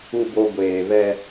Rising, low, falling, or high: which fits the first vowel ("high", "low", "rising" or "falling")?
low